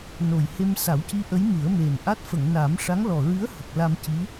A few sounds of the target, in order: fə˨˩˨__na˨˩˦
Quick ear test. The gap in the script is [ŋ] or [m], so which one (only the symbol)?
ŋ